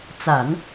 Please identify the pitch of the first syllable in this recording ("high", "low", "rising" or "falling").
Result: low